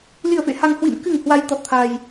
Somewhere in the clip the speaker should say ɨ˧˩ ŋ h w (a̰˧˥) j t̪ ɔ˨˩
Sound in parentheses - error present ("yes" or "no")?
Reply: yes